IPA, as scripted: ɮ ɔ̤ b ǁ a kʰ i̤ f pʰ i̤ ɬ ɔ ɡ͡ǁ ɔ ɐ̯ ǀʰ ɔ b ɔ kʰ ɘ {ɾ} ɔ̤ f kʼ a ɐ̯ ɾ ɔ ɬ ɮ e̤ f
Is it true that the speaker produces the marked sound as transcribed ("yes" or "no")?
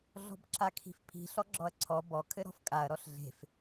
yes